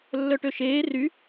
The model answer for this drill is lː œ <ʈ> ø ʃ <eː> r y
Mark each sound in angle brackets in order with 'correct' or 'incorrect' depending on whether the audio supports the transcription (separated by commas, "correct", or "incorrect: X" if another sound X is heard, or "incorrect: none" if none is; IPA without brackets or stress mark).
correct, correct